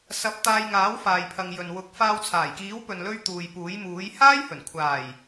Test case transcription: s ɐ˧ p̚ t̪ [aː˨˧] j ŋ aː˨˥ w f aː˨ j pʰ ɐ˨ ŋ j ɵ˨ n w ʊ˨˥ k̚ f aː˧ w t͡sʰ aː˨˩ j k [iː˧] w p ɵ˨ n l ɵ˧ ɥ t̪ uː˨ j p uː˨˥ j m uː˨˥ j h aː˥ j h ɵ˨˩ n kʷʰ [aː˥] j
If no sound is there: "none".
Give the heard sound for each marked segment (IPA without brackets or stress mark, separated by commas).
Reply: aː˧, iː˨˥, aː˨˩